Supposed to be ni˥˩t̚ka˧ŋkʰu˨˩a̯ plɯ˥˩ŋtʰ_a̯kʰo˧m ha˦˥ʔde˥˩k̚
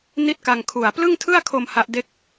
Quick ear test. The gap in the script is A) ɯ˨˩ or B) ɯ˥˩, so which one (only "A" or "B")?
B